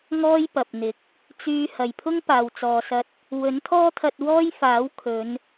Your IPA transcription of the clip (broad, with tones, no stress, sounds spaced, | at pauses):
ŋ ɔː˥ j p ɐ˨ p̚ n̪ ɪ˨˥ k̚ | t͡s yː˧ h ɐ˨ j pʰ ʊ˥ ŋ p aː˨ w t͡s ɔː˨ s ɐ˧ t̚ | w ɵ˨˥ n t̪ʰ ɔː˥ t̪ʰ ɐ˧ t̚ w ɔː˥ j f aː˨˥ w kʰ ɵ˨˧ n